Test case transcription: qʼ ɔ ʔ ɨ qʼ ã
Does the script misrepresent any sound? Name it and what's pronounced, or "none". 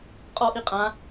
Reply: ɨ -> i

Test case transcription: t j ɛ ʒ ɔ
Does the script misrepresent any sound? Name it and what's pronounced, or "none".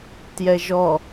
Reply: none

